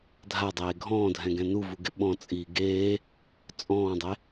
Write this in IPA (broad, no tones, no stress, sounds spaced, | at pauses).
dʱ a dˤ eː ɡʱ ɔ̃ː dʱ ɛ̃ ɡ ɛ̃ n u v u ɡ ɪ ɓ ɔ̃ t͡sʼ iː ɡ eː | t͡sʼ ɔ̃ː dˤ e